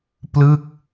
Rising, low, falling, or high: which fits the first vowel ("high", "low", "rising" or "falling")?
falling